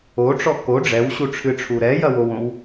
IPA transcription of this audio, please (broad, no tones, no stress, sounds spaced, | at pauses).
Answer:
o ʈ͡ʂ ɔ k o ɖ͡ʐ ɛ w ɕ u ʈ͡ʂʰ ɨ ʈ͡ʂʰ u ɾ ɛ j ɐ w o w õ w